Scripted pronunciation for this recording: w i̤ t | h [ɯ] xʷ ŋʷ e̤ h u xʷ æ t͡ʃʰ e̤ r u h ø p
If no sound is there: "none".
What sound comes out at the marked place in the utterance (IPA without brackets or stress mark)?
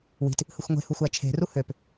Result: ɯ